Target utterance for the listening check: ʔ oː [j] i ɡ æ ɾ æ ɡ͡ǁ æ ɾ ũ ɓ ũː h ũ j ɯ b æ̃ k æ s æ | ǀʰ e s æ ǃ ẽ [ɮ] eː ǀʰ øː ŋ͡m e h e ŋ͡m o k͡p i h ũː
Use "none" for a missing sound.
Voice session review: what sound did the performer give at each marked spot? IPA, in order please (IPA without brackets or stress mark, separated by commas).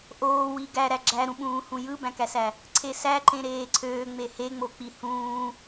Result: w, ɾ